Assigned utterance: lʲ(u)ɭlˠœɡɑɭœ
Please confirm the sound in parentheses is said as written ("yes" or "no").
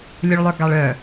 yes